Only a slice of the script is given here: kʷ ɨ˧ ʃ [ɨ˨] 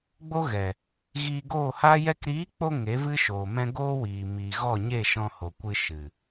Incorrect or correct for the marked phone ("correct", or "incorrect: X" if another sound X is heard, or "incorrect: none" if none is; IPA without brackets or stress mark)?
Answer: correct